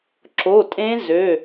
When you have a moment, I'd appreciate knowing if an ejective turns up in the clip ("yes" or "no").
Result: yes